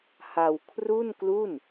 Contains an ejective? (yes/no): no